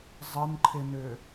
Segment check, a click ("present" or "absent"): present